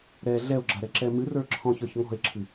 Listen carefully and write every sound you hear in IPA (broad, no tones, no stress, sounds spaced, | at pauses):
ɾ ɛ ɮ ɛ o̯ ɡ͡ǁ a ɾ ɛ ǁ ɛ m ɨ r ə˞ ǁʰ ɔ̃ ç ə˞ ç ŋ ɔ̤ e̯ ǁʰ ɨ